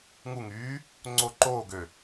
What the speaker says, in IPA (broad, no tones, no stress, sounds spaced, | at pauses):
ŋ u ŋ yː | ŋ͡ǀ o ǃ oː ɡ ø